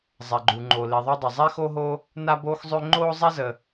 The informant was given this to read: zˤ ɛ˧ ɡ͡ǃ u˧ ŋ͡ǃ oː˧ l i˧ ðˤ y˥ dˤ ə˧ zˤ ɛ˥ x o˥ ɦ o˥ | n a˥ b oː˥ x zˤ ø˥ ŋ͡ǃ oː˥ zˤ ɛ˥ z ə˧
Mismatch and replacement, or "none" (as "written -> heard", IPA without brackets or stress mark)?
none